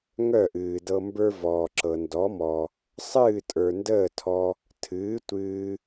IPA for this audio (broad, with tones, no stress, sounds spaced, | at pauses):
ŋ œ˥˩ ʔ ɨː˩ d ɤ˧ m b ə˞˧ v ɔː˩ ǁ ɤ˩ n d ɔ˩˥ m ɔ˩ | sˤ ɨː˥˩ tʼ ə˞˩ n d əː˥˩ tʰ ɔ˧ | tʰ ɨː˩˥ tʷ ɨː˧